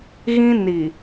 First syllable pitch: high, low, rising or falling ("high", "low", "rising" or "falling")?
high